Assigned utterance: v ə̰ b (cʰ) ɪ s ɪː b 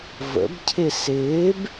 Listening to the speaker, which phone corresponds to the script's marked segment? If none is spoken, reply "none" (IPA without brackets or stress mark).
cʰ